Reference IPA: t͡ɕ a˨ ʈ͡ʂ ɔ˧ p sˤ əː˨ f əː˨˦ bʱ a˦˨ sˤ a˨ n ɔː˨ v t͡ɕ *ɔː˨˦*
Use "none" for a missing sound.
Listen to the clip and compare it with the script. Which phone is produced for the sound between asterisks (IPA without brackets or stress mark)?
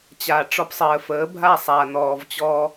ɔː˧